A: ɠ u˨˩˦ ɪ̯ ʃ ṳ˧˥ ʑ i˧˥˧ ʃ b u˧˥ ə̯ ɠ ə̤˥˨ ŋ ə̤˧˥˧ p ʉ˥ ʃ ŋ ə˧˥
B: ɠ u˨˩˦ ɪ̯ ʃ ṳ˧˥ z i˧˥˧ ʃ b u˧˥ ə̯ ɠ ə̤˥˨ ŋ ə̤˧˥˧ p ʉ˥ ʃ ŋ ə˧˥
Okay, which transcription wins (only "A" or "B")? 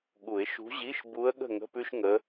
A